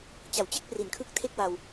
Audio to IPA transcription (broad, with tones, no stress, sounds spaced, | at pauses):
t͡ɕ a˩˦ w t͡ɕ e˥˩ k̚ p r i˩˦ n kʰ ɯ˦˥ k̚ tʰ e˥˩ k̚ w a˧ w